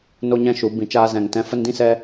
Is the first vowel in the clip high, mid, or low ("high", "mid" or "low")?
mid